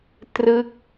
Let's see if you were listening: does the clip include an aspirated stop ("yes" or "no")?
no